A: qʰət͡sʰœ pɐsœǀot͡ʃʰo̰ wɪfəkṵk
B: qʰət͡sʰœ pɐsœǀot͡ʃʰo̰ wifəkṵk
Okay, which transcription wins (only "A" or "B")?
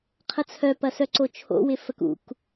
A